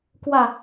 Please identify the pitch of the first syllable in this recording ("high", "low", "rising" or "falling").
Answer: falling